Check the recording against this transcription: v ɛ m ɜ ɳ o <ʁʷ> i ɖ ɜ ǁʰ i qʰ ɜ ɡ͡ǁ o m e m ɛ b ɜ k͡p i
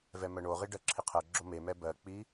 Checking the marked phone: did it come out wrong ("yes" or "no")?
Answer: yes